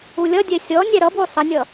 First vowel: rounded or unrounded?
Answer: rounded